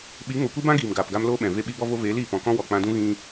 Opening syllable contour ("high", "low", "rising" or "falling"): rising